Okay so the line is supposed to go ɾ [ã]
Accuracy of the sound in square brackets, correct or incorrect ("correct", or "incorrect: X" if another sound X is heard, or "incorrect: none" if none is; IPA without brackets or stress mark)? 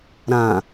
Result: correct